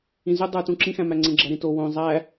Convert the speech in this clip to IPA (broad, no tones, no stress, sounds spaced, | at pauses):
ĩ z y dˤ ɯ t ũ ǁ ĩ x æ̃ m æ ŋ͡ǀ ẽ ɡ͡ǁ æ ɾ ĩ t o w õ zˤ æ